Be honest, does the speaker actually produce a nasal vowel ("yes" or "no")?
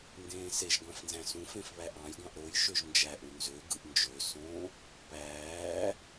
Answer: yes